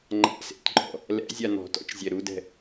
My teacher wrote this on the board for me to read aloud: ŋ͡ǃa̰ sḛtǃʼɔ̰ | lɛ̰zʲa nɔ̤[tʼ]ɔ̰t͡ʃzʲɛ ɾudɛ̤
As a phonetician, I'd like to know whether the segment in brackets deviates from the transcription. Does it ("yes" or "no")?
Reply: yes